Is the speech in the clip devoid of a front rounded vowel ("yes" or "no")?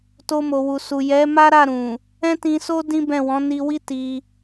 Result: yes